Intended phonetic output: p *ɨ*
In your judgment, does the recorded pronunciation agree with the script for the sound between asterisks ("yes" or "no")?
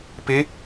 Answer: no